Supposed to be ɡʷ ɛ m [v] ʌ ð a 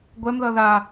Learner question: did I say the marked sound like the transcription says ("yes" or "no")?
no